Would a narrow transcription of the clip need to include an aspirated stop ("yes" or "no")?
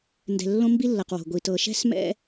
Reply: no